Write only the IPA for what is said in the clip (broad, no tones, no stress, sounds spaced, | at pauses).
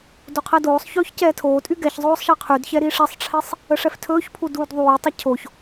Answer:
d o qʰ ɛ d oː sˤ ç ɵː ç c ɛː tʰ oː tʼ y ɡ ɛ ç zˤ oː sˤ ʃ ɛ qʰ y d ç ɛ ɾ i ʂ ɛ sˤ ʈ͡ʂʰ i sˤ | ə ʂ ɛ f tʰ ɵː ç pʰ u d uː d ðˤ uː tˤ ə cʰ o ç